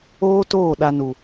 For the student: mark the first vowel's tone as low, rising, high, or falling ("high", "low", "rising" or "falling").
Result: high